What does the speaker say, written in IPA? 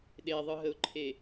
ɗ e ðˤ ɯ ɦ ə ʊ̯ ǃʰ e

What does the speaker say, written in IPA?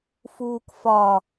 f uː k f ɒ

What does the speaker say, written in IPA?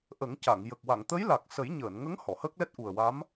ʔ ə˨˩˦ ŋ c a˨˩˨ ŋ j ə˨˩ k̚ w a˨˩˨ ŋ t̪ ə˧˥ j l a˨˩ k̚ s ə˨˩˦ j ɲ əː˨˩˨ n ŋ ə˧˥ ŋ h ɔ˨˩˨ h əː˦˥ k̚ l ɛ˦˥ t̚ ʔ u˨˩ ə̯ w a˧˥ m

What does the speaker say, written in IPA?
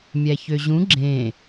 mʲ æ ç ø ʑ ũ ɡ͡ǁ ẽ

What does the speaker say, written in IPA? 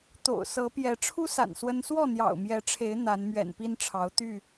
t̪ o̰˨˩ ʊ̯ s ɤ˨˦ p j ɛ˨˦ ʈ͡ʂʰ u˦ s a̰˨˩ n s w ə˦ n s w ɔ˥˨ n̪ j ɑ̰˨˩ ʊ̯ m j ɛ˨˦ ʈ͡ʂʰ e˨˦ ɪ̯ n̪ a˨˦ n m ɥ ɛ̰˨˩ n p i˦ n ʈ͡ʂʰ ɑ˨˦ ʊ̯ t̪ y˥˨

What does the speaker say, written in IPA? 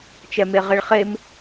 t͡ʃ ɛ m e ʁ e ɭ χ e m

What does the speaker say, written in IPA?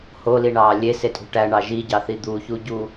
h o l i ɳ ɑː lʲ e s e tʼ ṳ ʈ æ ɳ ɑ ʒ i ɟ ɑ θ i d̪ u ç u ɟ u

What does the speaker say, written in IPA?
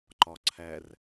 ǃ ɒ ǀʰ æ r

